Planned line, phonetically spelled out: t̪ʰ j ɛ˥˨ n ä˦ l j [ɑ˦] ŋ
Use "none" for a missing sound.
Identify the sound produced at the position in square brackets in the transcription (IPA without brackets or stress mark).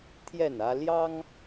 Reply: ɑ˦